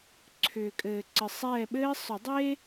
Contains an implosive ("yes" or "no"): yes